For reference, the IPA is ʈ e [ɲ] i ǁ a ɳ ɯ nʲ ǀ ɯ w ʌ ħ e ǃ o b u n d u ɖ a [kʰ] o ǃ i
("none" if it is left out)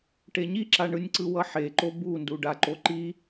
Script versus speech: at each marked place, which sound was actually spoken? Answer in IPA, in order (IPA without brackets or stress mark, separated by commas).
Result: ɲ, ǃ